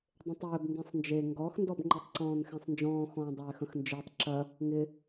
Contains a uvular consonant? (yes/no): no